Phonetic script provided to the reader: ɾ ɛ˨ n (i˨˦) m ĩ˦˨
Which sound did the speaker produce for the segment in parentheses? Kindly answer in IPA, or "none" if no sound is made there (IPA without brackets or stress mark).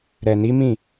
i˨˦